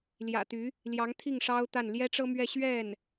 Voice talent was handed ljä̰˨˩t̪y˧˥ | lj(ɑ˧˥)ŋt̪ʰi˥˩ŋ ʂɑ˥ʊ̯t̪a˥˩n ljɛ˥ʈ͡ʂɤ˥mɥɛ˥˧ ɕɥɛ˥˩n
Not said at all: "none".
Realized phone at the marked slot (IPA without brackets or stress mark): ɑ˧˥